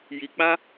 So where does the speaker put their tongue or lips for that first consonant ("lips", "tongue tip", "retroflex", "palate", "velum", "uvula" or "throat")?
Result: palate